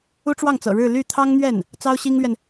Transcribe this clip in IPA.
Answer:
u˥ ʈ͡ʂ w ɑ˥˩ ŋ t͡s ɤ̰˨˩ ɻ ɻ̩˥˧ l y˥˩ t̪ʰ ɑ˥ ŋ n̪ ɥ ɛ˥˩ n | t͡s ɑ˥ ʊ̯ ɕ i˥ ŋ l ɥ ɛ˨ n

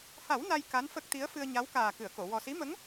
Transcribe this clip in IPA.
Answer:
h a˨˩˦ w n a˧ j k a˧˥ n f ə˦˥ k̚ t̪ i˧˥ ə̯ f ɨ˧ ə̯ ɲ a˧˥ w k aː˨˩ k ɨ˨˩˨ ə̯ k o˨˩˨ w ɔ˨˩ s i˧˥ m ə˧˥ ŋ

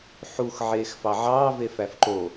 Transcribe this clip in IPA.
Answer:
ħ u x ʕ eː x f ɑ ʕ ɑː v e f æ f ǃ o

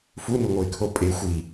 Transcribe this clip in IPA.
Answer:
f u n u ŋʷ ɤ ɪ̯ kʰ o pʼ e xʷ i

